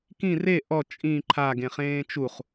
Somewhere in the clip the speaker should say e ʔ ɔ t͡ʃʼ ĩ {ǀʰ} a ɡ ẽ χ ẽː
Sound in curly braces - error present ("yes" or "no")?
yes